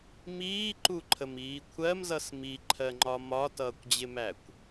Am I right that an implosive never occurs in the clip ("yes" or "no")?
yes